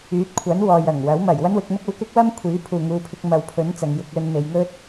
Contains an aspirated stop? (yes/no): yes